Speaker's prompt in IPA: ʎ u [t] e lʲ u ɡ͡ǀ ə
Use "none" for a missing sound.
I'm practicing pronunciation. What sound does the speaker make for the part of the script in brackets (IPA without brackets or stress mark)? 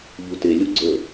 t